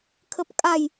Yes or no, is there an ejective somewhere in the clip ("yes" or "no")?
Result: yes